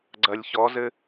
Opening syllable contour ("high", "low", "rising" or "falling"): low